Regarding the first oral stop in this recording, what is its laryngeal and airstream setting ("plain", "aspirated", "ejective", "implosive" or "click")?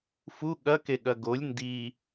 implosive